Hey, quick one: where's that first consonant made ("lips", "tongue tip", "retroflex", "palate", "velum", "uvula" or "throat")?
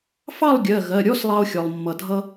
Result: lips